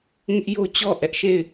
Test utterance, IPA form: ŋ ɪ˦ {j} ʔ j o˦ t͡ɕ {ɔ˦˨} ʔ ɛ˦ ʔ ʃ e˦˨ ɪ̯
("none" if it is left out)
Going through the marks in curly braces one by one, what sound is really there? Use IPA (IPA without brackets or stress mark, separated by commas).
none, ɔ˦˨